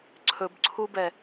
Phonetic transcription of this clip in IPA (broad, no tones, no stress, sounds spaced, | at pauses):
ǀʰ ɵ b ǀʰ u b ɛ